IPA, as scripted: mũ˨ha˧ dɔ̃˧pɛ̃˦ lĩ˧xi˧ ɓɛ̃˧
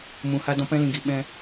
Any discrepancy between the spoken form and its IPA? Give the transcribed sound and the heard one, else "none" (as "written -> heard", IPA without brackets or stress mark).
x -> ɡ